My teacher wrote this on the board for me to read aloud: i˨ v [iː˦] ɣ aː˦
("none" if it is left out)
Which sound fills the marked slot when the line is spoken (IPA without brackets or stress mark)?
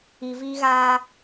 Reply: iː˦